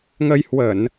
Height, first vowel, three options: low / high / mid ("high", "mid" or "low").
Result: mid